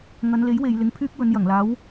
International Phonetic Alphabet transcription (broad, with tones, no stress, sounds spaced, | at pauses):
ŋ ɐ˨˧ n l e˨˥ j w e˨ j l ɪ˨ ŋ pʰ yː˥ k̚ w ɵ˨˧ n j ɐ˨˩ ŋ l aː˨˥ w